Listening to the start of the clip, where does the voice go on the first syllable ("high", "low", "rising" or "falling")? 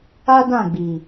high